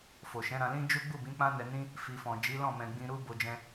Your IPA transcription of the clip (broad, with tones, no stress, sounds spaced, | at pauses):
f o˨ ʃ ɛ̃˨˦ ɾ ã˧ l ĩ˦ d͡ʒ u˦ ɡ͡b u˦˨ b ĩ˨˦ k͡p ã˦ n ɛ˧ n ĩ˦ | f i˨ f ɔ̃˨ d͡ʒ i˨˦ l ɔ̃˦˨ m ɛ̃˧ ɡ͡b ĩ˦ ɾ u˦ b o˦ d͡ʒ ɛ̃˦